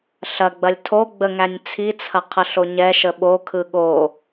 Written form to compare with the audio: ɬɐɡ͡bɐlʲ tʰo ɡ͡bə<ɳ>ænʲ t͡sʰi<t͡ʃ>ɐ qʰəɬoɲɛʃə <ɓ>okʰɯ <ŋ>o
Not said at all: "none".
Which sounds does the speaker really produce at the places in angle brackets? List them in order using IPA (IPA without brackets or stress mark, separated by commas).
ŋ, t͡sʰ, ɓ, ɠ